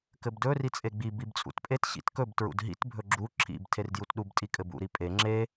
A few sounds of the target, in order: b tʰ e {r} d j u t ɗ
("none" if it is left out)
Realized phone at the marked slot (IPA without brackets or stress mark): r